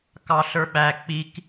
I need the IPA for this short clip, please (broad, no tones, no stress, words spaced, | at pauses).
kɑɬə˞ɓæ k͡pik